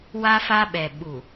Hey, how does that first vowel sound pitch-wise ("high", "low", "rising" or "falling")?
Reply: high